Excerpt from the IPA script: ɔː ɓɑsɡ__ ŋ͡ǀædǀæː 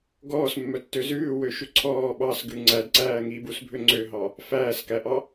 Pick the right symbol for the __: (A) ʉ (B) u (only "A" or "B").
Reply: A